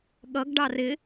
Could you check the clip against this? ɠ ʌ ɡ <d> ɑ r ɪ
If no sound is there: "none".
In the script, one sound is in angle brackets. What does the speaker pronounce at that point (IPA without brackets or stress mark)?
ɖ